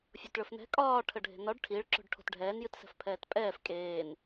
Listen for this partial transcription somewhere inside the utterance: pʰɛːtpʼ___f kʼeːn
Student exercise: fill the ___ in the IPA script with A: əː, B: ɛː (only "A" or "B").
B